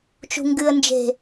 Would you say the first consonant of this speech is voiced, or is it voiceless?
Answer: voiceless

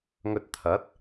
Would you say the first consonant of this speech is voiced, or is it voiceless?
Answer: voiced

